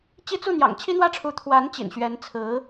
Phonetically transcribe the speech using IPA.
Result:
t͡ɕ i˥ t͡s u˥˩ n̪ j ɑ̰˨˩ ŋ t͡ɕʰ i˥ n̪ w ä˥˩ ʈ͡ʂʰ u˧˥ t̪ʰ w a˧˥ n t͡ɕ ḭ˨˩ n ɕ ɥ ɛ˧˥ n t͡sʰ ɹ̩˧˥

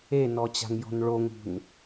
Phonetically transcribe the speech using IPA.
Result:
e n ɔ t͡ɕ a̤ ŋ j ɔ̤ n ɭ o ŋ ṳ n

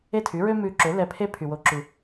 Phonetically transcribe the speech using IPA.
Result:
e˥˩ tʰ y˩˥ ɹ ø˥ m ʉ˧ ǁ ø˩˥ l ɛ˧ pʰ e˥ pʰ y˩ w o˩˥ ǁ ʉ˩

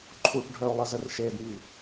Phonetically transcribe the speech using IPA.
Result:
ǃʰ u ʈ ɖʱ œ o̯ lˠ ə z ə r ʃ e d ŋ i

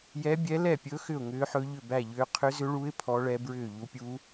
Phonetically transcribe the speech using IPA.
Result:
j ɛ˧˥ bʲ ɛ˧˥ l ɛ˥˩ pʲ ɵ˧˥ x ʏ˥˩ ʊ̯ ŋ ʏː˧˥ ħ ɵ˧˥ ʎ ʏ˥˩ b æ˥˩ ʎ ʏː˧˥ qʰ ʏ˧˥ z ʏ˧˥ ɭ u˧˥ ɪ̯ pʰ ɔ˧˥ ɭ ɛ˧˥ b ɹ ʏː˥˩ ʎ u˧˥ pʲ uː˧˥

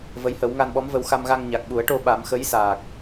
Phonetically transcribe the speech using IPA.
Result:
v ə˧˥ j h ə˨˩˦ w ŋ a˧ n ɓ ɔ˧˥ m v ə˧ w x a˧ m ɣ a˧ ŋ ɲ a˨˩ k̚ ɓ u˨˩˦ ə̯ ʈ o˧ ɓ a˨˩˦ m x ə˧˥ j s aː˨˩ k̚

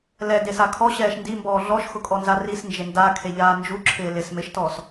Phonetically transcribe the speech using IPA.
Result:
l ɛ d e s a kʰ ɔ ɕ ɛː ʃ n d i m b ɔː ɮ ɔ ʃ x ʊ kʼ ɔ n z a r i s n d͡ʒ e n d a kʰ e ʎ aː n d͡ʒ u ǁʰ ɪː l ɪ s m ɪ ʃ t ɔ s

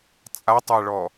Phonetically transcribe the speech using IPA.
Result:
t͡sʼ a tˤ a ɭ ɔ

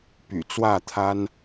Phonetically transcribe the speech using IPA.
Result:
p y̰˨˩ t͡s w ä˥˨ t̪ʰ a˦ n

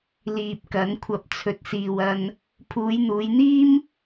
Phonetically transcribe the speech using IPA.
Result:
l iː˨ p̚ k ɐ˨˧ n kʷʰ ɐ˨˥ p̚ t͡sʰ ɵ˨ t̚ s iː˨ w ɐ˧ n | pʰ uː˨˧ j n̪ uː˨˧ j n̪ iː˥ m

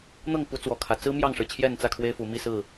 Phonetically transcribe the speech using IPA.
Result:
n̪ ɤ˥˨ ŋ p u˨˦ t͡s w ɔ˨˩ kʰ ä˨˦ t͡s ɹ̩˦ m j ɑ˥˨ ŋ ʂ ɻ̩˩ t͡ɕʰ j ɛ˥˨ n t͡s ä˥˨ kʰ w e˦ ɪ̯ f u˨˦ m i˥˨ s ɹ̩˥˨

